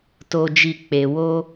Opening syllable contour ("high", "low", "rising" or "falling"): high